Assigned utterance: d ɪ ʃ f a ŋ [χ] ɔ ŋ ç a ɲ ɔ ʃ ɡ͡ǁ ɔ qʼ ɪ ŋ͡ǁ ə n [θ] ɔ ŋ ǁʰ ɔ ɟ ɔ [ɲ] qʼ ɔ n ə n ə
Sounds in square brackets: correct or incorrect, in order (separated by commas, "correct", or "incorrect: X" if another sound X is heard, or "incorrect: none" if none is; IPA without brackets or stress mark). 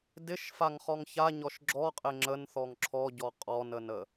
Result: correct, correct, incorrect: none